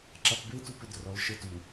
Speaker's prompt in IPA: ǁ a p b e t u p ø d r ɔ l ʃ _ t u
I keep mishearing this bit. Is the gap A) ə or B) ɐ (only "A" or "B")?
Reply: A